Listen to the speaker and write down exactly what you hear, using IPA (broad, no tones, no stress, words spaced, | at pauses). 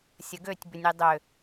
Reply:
sʲəɡøtʲ bʏnʲidˤʏ